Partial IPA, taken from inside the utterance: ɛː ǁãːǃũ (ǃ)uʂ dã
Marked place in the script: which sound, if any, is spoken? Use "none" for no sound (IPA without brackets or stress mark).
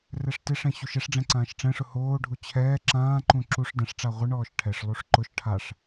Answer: ǁ